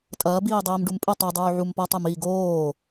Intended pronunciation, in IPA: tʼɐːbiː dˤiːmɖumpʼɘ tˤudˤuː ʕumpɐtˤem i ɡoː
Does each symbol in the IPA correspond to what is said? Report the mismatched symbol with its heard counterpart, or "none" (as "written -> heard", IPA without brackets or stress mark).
none